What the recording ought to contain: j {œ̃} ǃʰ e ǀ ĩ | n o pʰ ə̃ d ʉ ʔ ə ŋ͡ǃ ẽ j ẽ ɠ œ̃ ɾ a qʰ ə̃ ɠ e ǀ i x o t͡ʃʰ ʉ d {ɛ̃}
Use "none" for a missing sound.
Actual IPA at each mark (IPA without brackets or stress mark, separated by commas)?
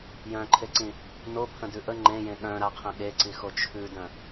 œ̃, œ̃